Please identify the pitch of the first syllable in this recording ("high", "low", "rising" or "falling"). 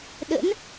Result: rising